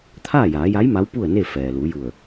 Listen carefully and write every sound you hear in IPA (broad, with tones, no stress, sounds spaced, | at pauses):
t̪ʰ aː˥˨ j aː˩˧ j a˧˥ j m a˧˥ w p u˥˨ ə̯ n e˥˨ f ɛː˩ l u˩˧ j u˧˩ ə̯